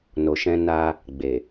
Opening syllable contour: low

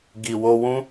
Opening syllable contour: low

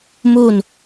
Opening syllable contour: falling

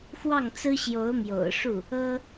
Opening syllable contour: falling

